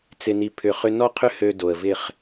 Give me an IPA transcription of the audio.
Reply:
t͡sɪ˧ni˧pʰʏ˧ χʏ˦ nɔ˦qʰʏ˦ hø˧ do˨ə̯vɪ˦˨χ

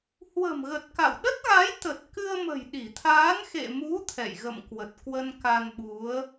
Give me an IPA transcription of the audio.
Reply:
hwə̤˨˩mɣə˨˩t̚ka̰˧˨w ɗə˦˥t̚ɣa˨˦j t̪ə˨˩t̚kɨ˧ə̯mə̤˨˩j ɗi˧˩t̪ʰaː˨˦n xḛ˧˨mu˨˦ t̪ʰɛ̰˧˨jɣə̰˧˨mkwə˨˩t̚ kwə˧nka˧nɓu˨˦ə̯

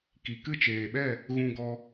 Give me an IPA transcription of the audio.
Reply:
ki˨kɨ˦˨t͡ʃeː˨ɓɛ˦˨ | ɣũ˧ɡɔ˧

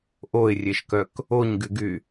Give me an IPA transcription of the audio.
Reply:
ʔoɪ̯rʲeʃkœk | oɲɡyɡy

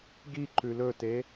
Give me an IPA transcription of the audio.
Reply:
ɡiǃʉ lɵte

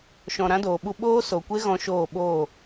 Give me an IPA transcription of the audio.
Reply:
ʃɔ̃˨ ɾã˦doː˨ɓu˧ ɓoː˦so˨kʷe˦ ɣɔ̃˦ʃoː˦˨ ɓoː˦˨

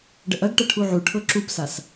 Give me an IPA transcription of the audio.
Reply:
ɖəʔɐɡʈɐ ʈʰuʕuʈʰɤ ǁupsas

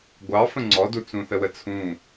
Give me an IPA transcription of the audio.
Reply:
ɡʷɑfə̃ ŋ͡ǀɔdut͡sũθə wət͡sʰũ

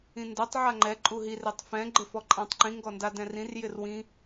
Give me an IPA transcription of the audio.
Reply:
ĩndɛtˤ ʕaŋ͡ǃɛ ǃʼuɦir etˤfɛ̃ ɡ͡ǃɪfɔǃʼãtˤǃĩ ŋɡɔndadɛ̃rĩr jɪrwĩ

